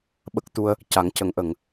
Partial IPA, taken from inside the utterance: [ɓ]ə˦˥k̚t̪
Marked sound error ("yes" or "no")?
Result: no